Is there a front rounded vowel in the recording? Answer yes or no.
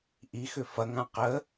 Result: yes